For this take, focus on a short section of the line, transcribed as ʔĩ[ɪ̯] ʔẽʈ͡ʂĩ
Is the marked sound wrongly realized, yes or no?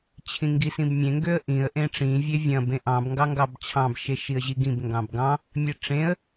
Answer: yes